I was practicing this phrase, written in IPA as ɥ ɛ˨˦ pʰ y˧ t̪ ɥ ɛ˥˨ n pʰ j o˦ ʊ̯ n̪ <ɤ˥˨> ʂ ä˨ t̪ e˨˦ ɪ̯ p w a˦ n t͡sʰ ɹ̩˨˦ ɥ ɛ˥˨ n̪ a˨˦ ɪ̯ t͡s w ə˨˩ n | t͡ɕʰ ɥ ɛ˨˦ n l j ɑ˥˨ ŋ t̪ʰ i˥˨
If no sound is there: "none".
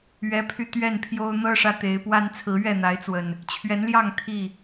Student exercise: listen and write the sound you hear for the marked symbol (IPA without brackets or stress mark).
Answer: ɤ˦